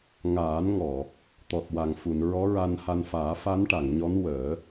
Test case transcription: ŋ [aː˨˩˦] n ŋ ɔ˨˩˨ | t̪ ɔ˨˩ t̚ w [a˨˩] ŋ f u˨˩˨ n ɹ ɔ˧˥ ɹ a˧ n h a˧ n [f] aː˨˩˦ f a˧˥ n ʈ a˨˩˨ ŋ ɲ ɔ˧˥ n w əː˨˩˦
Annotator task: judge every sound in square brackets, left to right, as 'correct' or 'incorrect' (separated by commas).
correct, correct, correct